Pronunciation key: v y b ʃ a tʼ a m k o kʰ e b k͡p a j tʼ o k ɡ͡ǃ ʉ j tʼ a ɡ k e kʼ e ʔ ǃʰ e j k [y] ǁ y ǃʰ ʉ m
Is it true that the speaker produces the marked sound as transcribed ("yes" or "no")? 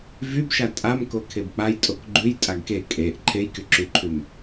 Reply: yes